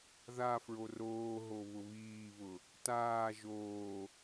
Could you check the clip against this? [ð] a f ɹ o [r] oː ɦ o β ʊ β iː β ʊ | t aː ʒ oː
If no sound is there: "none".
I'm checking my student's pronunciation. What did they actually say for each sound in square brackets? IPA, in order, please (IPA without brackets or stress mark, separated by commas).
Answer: ð, r